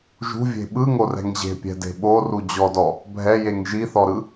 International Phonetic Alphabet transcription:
ʒ ṳ vʲ e̤ ɓ ɯ ŋ o r ɛ̤ ŋ ʑ e̤ pʲ ɛ̤ d e̤ ɓ o r u d͡ʑ ɔ d ɔ | bʱ ɛ j e ŋ ʒ i θ ɔ ɾ ɯ

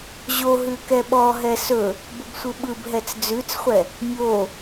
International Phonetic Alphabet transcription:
ʑ o ɦ ʉ k ɛ ɓ ɔ ɦ ɛ s ɵ | b ə b sʷ ɯ ɓ ɯ b ɦ ɛ t͡s d͡z ʉ t͡s χʷ ɛ | mʲ o

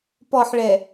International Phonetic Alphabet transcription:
p ɔ ħ ɭ ɛ

